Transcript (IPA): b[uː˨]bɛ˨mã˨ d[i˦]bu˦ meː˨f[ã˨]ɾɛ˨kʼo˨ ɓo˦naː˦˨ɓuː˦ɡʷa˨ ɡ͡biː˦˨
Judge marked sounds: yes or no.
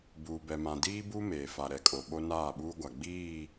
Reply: yes, no, no

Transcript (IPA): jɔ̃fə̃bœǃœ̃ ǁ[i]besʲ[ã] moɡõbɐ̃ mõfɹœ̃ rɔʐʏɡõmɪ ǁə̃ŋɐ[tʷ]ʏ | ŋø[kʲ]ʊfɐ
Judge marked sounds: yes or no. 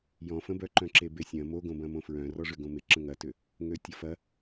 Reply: no, no, no, no

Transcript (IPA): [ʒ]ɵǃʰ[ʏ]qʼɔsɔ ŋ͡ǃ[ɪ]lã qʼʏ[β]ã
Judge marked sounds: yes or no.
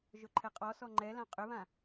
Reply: yes, no, no, yes

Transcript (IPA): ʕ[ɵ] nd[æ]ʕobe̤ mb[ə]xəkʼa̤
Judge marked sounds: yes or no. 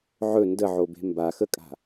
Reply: yes, no, no

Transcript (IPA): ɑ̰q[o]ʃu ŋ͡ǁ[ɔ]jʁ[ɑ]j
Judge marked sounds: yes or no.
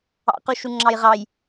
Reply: no, no, yes

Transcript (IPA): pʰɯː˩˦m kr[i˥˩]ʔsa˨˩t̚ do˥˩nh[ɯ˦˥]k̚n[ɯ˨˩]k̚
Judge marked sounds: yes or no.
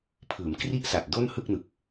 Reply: yes, no, yes

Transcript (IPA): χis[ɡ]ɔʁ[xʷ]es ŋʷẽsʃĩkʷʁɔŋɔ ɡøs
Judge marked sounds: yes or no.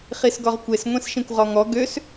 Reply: yes, no

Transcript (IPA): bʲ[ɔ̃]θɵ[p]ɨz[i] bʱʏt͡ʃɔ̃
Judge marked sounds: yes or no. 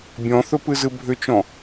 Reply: yes, yes, no

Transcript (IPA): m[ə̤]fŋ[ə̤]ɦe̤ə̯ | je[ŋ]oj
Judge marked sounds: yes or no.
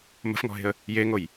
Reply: yes, no, yes

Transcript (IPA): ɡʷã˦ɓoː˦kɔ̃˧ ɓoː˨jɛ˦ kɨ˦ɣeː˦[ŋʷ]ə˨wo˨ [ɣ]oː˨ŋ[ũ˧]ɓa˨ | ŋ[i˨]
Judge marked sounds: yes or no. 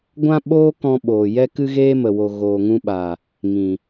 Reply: no, yes, yes, no

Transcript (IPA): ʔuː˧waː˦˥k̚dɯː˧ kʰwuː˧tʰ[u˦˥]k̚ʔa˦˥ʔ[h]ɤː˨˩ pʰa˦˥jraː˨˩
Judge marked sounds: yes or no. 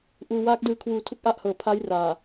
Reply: yes, yes

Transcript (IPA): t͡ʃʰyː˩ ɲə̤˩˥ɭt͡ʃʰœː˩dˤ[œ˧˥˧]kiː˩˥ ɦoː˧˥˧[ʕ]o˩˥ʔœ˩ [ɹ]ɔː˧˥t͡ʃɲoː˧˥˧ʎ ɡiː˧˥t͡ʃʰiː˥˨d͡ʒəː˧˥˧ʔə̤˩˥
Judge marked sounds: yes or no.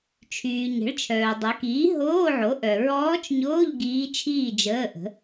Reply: no, yes, yes

